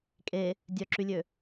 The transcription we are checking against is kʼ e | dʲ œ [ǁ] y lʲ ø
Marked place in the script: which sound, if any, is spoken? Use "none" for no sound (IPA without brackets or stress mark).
ǁ